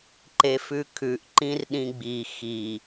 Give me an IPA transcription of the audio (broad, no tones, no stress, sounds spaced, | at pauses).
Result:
ǃ e f ʉ kʰ ʉ ʔ ǃ ĩ r ɗ ĩ ɡ͡b i x i